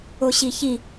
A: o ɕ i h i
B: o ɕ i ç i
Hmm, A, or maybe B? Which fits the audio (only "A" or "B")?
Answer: B